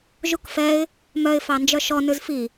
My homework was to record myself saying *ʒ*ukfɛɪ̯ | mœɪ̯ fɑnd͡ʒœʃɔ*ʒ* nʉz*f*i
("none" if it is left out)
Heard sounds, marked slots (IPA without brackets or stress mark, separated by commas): ʒ, none, f